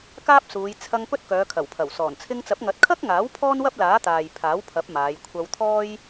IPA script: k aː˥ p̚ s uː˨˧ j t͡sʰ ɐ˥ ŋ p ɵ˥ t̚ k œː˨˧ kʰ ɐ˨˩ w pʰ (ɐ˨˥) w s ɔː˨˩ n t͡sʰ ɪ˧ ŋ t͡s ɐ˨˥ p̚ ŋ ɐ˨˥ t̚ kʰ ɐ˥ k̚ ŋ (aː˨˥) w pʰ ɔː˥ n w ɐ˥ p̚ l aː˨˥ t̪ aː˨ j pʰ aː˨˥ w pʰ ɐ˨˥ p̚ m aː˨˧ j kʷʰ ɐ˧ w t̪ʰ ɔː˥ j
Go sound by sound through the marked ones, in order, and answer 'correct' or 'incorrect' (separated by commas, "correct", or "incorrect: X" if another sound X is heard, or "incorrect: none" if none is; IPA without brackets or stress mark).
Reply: incorrect: ɐ˨˩, correct